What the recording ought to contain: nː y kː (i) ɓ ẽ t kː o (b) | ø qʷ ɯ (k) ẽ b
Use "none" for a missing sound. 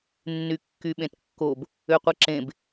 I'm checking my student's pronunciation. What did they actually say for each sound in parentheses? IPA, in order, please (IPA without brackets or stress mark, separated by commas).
y, b, ǁ